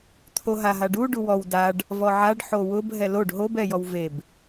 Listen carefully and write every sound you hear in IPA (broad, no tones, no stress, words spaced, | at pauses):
t̪ʰoɦaɦaɖu ɖuwɔw daɖ | vɔʕaɖ ħowʊb ɦɛloɖ ɦob ɛjɔwveb